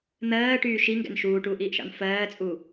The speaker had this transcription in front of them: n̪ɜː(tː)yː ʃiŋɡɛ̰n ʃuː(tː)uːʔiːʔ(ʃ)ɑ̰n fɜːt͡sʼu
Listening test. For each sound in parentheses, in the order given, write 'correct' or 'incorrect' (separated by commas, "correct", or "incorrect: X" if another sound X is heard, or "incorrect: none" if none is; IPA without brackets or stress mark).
incorrect: ʈ, incorrect: ʈ, correct